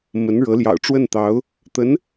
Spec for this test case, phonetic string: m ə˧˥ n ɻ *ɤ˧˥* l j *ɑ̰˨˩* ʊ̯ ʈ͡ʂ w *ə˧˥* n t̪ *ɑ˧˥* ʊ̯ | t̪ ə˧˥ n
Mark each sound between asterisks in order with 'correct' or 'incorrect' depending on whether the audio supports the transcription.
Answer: correct, correct, incorrect, correct

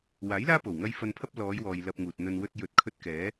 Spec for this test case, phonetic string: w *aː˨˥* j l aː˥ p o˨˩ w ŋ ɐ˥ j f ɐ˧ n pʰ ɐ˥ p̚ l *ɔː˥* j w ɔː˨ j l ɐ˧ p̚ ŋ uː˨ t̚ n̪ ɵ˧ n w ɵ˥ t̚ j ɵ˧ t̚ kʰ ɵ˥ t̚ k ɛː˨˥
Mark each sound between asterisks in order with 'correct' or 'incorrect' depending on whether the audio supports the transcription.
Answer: correct, incorrect

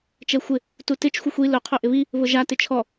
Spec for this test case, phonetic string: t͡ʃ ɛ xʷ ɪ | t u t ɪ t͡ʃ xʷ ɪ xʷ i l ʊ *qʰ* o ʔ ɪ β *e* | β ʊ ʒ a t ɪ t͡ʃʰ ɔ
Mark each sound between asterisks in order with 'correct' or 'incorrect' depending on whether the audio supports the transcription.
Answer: correct, incorrect

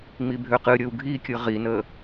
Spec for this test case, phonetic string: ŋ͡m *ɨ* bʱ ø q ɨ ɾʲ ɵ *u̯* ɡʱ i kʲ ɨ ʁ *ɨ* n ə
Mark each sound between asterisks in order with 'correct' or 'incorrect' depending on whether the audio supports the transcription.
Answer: incorrect, correct, incorrect

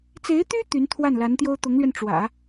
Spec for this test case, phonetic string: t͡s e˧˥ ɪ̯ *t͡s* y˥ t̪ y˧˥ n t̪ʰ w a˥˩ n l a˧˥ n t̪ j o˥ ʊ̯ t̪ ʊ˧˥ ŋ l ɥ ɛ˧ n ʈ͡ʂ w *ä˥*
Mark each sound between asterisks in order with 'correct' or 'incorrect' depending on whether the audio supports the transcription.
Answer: incorrect, incorrect

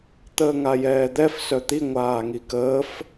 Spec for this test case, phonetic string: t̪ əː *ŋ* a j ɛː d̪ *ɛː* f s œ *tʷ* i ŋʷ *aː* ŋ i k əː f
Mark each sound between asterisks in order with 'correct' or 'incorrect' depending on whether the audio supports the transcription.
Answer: correct, incorrect, incorrect, correct

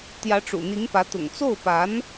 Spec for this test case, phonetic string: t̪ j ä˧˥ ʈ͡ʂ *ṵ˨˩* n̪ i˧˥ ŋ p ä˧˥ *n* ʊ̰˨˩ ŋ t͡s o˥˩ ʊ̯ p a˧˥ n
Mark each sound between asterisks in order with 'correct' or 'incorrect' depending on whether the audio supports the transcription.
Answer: correct, incorrect

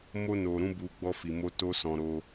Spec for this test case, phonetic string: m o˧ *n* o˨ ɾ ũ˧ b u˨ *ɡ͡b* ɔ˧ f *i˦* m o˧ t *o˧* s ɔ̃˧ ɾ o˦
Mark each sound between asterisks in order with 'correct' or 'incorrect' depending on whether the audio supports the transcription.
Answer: correct, correct, incorrect, incorrect

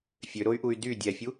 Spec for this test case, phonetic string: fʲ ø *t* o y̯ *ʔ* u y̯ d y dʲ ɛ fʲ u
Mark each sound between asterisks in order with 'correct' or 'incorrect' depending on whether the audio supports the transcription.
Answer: incorrect, correct

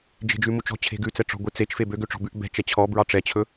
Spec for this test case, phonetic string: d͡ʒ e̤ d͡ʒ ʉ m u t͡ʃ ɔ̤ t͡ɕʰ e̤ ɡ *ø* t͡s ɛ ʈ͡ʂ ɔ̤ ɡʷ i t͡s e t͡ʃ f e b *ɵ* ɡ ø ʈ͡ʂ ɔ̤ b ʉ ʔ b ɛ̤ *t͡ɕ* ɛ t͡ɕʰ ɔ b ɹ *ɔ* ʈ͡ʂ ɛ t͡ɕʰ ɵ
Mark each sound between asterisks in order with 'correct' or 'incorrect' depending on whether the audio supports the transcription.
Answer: incorrect, incorrect, incorrect, incorrect

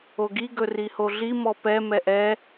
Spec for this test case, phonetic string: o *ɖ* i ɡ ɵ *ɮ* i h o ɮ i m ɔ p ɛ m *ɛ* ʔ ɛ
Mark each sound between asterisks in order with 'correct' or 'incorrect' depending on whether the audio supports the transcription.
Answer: incorrect, incorrect, correct

